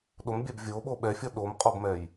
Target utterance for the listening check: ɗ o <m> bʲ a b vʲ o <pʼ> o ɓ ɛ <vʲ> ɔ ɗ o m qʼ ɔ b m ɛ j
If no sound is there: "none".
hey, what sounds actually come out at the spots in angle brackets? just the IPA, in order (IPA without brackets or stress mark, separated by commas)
m, ɓ, fʲ